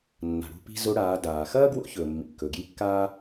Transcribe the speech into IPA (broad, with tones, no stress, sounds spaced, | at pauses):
nː a̤˩ ɽ ṳ˧ p i̤˧ z o˧˥ ɽ aː˩˧ d aː˩ x ɐː˥ ɡ w o̰˧˥ ç ɵː˩ mː ḭ˩ kː ɵ˩ ɡ j i˧˥ kː aː˥